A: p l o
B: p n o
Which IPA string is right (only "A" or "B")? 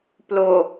A